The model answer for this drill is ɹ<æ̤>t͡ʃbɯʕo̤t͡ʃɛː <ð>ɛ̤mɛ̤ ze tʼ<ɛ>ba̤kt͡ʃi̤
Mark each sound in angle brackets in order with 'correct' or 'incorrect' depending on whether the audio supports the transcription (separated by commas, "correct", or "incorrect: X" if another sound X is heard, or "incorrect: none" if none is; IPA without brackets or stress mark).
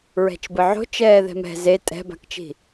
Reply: incorrect: ɛ̤, correct, incorrect: ɛ̤